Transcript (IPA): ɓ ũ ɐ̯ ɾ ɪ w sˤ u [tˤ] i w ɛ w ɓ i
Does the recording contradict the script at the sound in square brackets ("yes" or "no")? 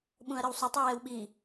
no